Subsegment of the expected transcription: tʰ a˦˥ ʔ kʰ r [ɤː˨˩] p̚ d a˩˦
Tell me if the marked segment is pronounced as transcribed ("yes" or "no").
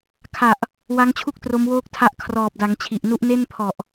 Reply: no